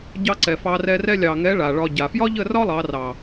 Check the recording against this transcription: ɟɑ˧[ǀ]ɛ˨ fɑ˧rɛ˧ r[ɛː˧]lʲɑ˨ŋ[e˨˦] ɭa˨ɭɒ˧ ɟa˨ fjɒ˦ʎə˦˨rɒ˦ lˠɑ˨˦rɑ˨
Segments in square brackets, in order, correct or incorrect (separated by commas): correct, incorrect, incorrect